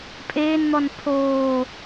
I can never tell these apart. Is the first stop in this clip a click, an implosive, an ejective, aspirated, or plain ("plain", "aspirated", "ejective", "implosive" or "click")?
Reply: ejective